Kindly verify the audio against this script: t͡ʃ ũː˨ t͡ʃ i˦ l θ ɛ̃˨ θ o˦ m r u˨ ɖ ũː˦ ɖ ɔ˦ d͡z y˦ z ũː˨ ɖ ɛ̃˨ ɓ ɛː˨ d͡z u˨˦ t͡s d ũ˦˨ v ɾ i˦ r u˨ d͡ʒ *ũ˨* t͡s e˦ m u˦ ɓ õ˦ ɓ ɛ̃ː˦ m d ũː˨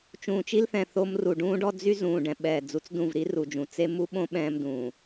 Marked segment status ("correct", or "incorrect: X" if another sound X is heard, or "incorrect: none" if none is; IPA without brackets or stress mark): correct